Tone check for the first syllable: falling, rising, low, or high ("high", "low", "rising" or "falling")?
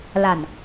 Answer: low